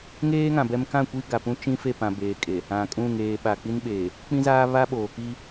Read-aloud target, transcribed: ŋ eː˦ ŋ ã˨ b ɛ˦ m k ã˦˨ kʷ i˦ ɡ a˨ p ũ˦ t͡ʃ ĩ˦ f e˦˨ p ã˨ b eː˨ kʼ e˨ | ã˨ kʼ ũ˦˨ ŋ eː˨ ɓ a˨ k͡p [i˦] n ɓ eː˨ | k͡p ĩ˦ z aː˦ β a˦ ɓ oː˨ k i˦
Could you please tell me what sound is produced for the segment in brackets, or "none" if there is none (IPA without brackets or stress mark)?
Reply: i˦